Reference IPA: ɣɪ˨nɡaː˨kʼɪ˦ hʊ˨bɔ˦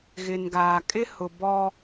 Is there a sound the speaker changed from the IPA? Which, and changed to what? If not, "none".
none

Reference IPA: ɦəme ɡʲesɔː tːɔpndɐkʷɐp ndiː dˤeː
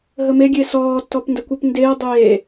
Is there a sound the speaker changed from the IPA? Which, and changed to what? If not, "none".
iː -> eː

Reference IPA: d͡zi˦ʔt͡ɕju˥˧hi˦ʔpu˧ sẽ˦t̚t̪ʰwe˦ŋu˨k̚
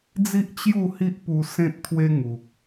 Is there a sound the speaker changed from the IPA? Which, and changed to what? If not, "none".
none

